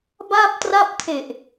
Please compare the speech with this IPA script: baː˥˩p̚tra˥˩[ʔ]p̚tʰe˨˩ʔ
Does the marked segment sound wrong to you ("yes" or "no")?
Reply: yes